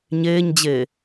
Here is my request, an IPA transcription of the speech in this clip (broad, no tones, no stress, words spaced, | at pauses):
ɲeːɲd͡ʑe